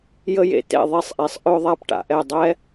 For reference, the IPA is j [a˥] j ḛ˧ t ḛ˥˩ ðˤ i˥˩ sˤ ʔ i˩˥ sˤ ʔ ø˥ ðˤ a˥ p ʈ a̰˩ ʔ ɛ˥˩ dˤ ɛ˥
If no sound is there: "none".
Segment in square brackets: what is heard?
ə˥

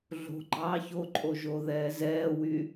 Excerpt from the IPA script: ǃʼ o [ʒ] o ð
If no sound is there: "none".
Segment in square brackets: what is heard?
ʒ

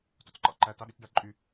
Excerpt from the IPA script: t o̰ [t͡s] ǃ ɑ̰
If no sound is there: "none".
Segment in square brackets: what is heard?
t͡s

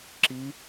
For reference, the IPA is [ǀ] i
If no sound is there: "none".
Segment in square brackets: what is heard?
ǁ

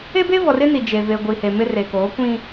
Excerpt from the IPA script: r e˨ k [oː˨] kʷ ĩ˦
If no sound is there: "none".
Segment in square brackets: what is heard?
oː˨˦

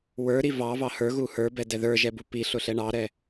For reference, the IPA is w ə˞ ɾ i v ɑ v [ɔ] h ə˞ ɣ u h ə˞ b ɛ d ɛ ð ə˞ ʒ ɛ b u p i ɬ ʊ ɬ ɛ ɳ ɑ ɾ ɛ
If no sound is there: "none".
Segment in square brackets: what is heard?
ɑ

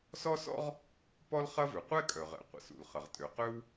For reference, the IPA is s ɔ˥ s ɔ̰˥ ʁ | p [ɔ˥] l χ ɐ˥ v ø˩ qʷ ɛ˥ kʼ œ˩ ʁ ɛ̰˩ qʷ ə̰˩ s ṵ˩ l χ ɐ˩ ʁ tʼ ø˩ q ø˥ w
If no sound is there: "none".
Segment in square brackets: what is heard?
ɔ˥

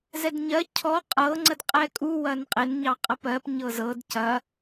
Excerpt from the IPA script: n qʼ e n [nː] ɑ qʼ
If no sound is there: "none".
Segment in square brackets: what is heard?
ɲ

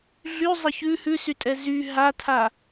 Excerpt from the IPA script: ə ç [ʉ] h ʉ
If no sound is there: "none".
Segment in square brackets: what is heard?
ʉ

